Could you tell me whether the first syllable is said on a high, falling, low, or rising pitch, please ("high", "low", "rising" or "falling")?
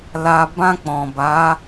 low